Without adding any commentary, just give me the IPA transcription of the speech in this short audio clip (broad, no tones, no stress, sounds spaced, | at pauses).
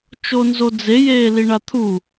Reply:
t͡ʃ o n z o d͡z e j eː l i ɳ a t̪ʰ u